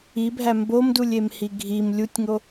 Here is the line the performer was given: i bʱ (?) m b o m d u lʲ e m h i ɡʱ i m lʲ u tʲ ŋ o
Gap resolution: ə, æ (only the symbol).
æ